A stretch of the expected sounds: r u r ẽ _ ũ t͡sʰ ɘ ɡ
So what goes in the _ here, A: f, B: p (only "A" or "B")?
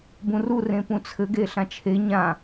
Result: B